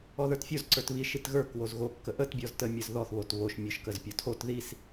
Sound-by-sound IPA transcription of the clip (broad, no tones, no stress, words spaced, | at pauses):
ɔðə˞tfʲoz ǀə˞tβiʃ itɣə˞k wozɣo kːəʔət bʲɔztə mʲə˞zðɔθ βotβoʃ mʲə˞ʃkəzpʲɔtʰot ðis